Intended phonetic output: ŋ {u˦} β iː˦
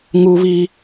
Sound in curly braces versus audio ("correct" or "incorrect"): correct